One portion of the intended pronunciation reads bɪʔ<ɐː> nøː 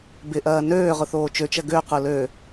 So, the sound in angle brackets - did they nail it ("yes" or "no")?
yes